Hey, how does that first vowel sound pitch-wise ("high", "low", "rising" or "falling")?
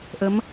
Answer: rising